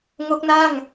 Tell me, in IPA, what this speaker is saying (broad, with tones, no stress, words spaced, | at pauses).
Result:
ŋo˦˥k̚na˥˩ŋ